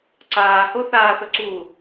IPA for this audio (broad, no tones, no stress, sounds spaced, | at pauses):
ǀ aː h o θ aː θ ɵ ǀ uː